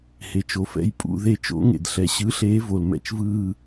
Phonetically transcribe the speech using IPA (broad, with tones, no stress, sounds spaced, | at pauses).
h e˩ t͡ʃ o˩ f ɛ̰˦˨ j pʼ ṵ˦˨ ð e˦˨ t͡ʃ o̰˨˥ ŋ ḛ˩ d ɬ ɛ˩ ɕ ɯ˨˥ ɬ eː˨˥ v o˩ l m ɛ̰˦˨ t͡ʃ v ɯː˦˨